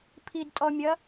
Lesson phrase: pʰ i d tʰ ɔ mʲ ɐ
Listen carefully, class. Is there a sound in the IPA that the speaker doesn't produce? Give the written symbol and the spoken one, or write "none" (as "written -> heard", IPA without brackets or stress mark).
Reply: tʰ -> tʼ